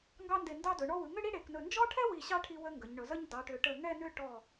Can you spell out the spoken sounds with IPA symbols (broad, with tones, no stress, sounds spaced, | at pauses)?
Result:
ŋ ɡ ɑ˥ n d e˧˩ n d ɑ˧ d ɵ˩˧ ɳ ɔ˧ w ɯ˩˧ ŋ ʏ˥˧ ɽ i˥ ɽ e˩˧ k n ɵ˧˩ n d͡ʒ ɔ˥ ʈʰ ɛ˥ w i˧˩ ɕ ɑ˥˧ ʈʰ i˧ w ə˧ ŋ ɡ ə˩˧ ɲ ɳ ɵ˩˧ z ə˥ ɲ d ɑ˩˧ ʈ ʏ˩˧ ʈ ə˧˩ ŋ ɛ˥˧ n ʏ˥˧ ʈ ɔ˧˩